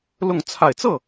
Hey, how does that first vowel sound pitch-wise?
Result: falling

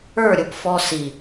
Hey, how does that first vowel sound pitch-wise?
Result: falling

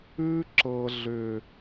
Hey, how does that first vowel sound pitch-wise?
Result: high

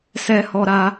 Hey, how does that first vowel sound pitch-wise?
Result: high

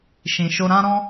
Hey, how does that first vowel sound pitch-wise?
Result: low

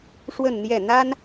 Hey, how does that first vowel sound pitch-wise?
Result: falling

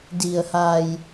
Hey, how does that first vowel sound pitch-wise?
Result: low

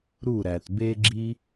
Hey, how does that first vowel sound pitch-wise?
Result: falling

